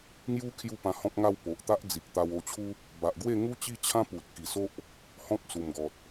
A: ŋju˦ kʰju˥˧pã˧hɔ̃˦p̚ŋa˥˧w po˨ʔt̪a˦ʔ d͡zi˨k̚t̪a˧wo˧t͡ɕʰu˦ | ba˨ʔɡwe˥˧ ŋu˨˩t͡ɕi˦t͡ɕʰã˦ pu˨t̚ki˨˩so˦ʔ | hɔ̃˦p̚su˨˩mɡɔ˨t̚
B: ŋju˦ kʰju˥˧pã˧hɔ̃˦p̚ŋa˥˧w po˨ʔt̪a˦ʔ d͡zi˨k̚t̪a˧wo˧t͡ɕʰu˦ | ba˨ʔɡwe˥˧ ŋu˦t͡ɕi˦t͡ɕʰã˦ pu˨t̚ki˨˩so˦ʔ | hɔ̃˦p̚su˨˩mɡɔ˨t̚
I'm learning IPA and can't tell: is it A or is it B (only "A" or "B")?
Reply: B